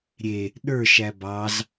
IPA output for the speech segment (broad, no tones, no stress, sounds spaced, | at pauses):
ɾʲ e | ɗ ə˞ ʃ æ b ɑ z